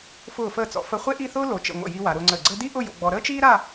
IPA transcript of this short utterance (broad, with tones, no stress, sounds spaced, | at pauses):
f ʊː˧˩ f əː˧˩ t͡s ɔ̰˩˧ f ə˧ χʷ e˥ ʔ i˥˧ θ ʊː˥ l o˩˧ t͡ʃ ə̰˧˩ ŋʷ ə̰˧˩ j i˧ w a˩˧ ɾ ʊː˧ ŋ͡ǀ əː˧˩ ɡ͡ǀ əː˥ d i˥ ʔ ʊ˥˧ j o̰˧ ɡ͡b ɔ˧ ɾ əː˥ t͡ʃ iː˥ ɾ a˥˧